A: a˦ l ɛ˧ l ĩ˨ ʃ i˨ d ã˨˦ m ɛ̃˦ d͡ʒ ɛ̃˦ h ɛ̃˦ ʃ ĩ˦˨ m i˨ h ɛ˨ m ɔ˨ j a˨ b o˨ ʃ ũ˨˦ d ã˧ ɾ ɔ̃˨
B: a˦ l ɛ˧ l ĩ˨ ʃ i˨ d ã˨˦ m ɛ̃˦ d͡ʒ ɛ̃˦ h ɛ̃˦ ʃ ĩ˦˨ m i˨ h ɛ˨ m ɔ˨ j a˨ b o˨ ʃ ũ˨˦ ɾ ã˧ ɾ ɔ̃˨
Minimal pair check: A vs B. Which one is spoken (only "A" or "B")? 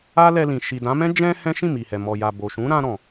B